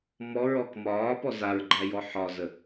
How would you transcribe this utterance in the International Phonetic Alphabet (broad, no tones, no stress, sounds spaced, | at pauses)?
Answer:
m ɔ ɹ ɔ k m ɒː p ɔ z a ɹ ɡ͡ǃ æ j ɔ ħ ɒ z ə